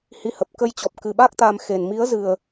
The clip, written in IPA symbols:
hi˧hə˨˩p̚ kə˧jt͡ɕɔ˨˩p̚kɨ˨˩ɓa˦˥k̚ t̪a˧mxe˨˩n mi˨˦ə̯zɨ˨˩ə̯

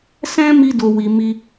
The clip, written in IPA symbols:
sɛ̃˦mi˧ do˧wi˨ mi˧

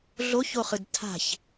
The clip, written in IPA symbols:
ɮoçoχɯd tʰa̤ç

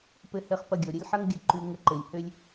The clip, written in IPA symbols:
pɘ˧hɘ˧χ pɐ˧ɡʲɔ˩ ɾʲə˥lʲħɐ˥ŋɡʲə˧ ǃʉ˧ ŋə˧ǃɘ˩lʲhø˥lʲ

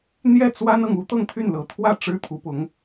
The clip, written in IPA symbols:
n̪jɛ˥˩ t͡swa˥nɤ˨ŋu˥ t̪ɤ˥˧ŋt̪ʰy˥˩nlɤ˨˩ t̪ʰwä˥˩ ʈ͡ʂɻ̩˥t̪ʰu˧˥pʊ˧˥ŋ

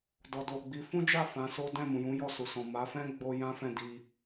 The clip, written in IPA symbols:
dɔ˨do˨ɡ͡bi˨˦ fũ˦d͡ʒa˦˨ fã˨˦so˦ dɛ̃˦˨mũ˨jũ˨˦ jɔ˦˨su˨sɔ̃˨ ma˨˦fɛ̃˦ ɡ͡bo˦ jã˦fɛ̃˦˨ di˧

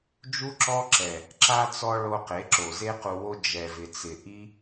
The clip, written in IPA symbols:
d͡ʒu˦ǁɔ˦ǁɛ˨ | ǁa˦t͡sɔ˦ ɭo˧qe˨˦ ǁo˨ze˦ qu˧wo˦ d͡ʒɛ˨vɪ˨t͡sɪ˨ ʔi˦

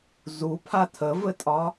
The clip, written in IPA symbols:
zupʰa tʰəvɘtʼɒ

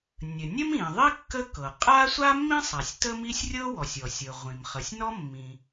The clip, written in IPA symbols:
nʲə˩nʲə˥mĩ˩ðˤi˥ kːə˥kɤ˩ qʼa˥ sʷa˥mːĩ˥sˤa˩sʲ tə˥mi˥sʲ rʲɤ˥wɔ˩sʲɔ˩sʲɤ˩ ʁʷĩ˩m χə˩sʲnɔ˥mːĩ˩

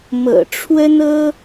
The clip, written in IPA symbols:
mɤ̰˨˩ʈ͡ʂʰwə˥nɤ˥

